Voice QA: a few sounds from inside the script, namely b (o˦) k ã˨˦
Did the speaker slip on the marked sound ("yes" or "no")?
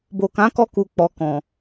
yes